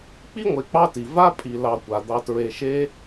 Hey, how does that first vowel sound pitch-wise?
high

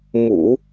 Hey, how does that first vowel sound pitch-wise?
low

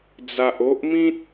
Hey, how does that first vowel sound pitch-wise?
low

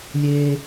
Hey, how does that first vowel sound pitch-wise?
high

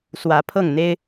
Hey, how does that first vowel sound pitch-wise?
rising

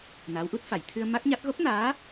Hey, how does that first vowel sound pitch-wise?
rising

